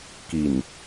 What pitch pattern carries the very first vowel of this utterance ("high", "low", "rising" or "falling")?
low